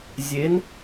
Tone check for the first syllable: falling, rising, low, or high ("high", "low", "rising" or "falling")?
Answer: rising